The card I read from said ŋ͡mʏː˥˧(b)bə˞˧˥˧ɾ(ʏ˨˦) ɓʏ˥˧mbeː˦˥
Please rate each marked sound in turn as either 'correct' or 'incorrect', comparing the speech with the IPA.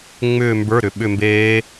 incorrect: m, correct

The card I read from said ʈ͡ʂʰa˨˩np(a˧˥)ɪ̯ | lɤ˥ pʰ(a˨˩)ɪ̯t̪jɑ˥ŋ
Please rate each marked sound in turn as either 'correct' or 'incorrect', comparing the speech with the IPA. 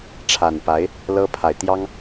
correct, correct

